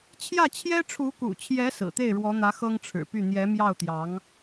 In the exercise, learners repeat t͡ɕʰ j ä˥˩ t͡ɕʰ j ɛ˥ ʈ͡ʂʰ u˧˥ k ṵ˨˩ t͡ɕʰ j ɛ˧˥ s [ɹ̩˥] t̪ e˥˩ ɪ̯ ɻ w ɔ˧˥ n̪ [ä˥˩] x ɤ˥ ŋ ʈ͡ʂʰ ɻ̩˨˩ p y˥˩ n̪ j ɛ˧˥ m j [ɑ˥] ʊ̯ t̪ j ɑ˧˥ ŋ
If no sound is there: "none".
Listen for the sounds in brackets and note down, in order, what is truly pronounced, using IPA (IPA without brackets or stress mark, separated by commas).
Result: ɹ̩˨˩, ä˧˥, ɑ˥˩